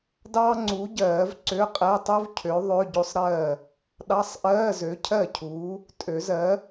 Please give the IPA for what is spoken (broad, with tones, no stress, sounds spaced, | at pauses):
d ɑː˥ ŋ͡ǀ u˨˥ ɟ ɜː˨˩˦ v ǀ ø˧˥˧ qʼ ɛ˧˥˧ tˤ u˥ v cʰ ø˨˥ ðˤ ø˧˥˧ ɟ o˥ sˤ ɾ ɜː˥˩ | ɗ ɑ˧˥˧ sˤ ʔ ɜː˧˥˧ z ø˨˥ cʰ ɜ˥˩ cʰ uː˨˥ | tʼ ø˨˩˦ z ɜ˨˥